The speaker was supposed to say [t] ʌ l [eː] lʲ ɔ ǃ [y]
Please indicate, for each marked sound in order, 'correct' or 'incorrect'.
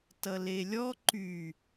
correct, incorrect, correct

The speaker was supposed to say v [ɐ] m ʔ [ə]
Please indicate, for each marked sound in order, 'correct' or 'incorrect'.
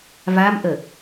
incorrect, correct

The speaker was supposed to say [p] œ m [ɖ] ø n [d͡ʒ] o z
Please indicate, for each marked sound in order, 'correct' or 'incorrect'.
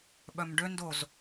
incorrect, correct, incorrect

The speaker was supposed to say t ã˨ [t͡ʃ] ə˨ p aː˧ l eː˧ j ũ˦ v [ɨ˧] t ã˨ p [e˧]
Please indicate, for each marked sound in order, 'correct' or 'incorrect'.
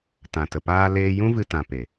incorrect, correct, incorrect

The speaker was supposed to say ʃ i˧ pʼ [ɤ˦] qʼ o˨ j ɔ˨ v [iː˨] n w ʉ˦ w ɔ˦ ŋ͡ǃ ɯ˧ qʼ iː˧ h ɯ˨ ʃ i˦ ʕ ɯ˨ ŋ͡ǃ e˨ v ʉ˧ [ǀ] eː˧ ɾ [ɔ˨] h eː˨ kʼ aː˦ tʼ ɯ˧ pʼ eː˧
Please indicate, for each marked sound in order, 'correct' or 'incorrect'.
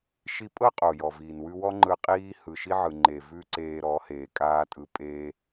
correct, correct, correct, incorrect

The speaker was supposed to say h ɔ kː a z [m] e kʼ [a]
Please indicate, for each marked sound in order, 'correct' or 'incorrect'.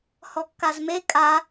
correct, correct

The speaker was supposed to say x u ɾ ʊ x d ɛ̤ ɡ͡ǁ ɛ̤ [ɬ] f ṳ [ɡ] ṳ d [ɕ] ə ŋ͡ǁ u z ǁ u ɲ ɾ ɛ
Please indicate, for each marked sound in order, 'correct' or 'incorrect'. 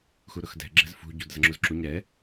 incorrect, incorrect, incorrect

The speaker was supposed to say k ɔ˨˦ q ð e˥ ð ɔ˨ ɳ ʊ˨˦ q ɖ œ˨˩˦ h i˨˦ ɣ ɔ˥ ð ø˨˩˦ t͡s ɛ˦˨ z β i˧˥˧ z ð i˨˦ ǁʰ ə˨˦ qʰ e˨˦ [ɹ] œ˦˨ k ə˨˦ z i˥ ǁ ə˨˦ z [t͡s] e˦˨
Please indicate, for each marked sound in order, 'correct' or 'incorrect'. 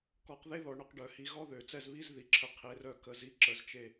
incorrect, incorrect

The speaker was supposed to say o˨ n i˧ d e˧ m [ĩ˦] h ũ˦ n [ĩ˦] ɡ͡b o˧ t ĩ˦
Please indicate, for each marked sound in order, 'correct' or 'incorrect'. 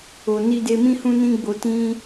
correct, correct

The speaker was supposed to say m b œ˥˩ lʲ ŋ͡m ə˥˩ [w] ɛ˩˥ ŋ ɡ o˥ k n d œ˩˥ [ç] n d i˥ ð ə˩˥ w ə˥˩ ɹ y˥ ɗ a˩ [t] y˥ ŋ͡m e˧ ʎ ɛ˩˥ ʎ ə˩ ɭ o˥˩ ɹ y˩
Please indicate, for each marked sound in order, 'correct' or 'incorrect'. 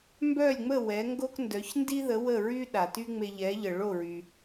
correct, correct, correct

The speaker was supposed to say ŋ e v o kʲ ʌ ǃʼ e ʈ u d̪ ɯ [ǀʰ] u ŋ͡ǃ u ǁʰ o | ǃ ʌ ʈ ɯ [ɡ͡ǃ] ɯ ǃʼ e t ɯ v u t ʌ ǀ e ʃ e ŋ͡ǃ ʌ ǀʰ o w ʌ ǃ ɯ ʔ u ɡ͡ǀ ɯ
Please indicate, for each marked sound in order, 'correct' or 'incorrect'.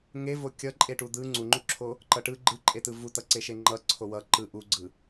incorrect, correct

